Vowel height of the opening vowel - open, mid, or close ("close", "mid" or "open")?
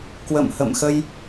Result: mid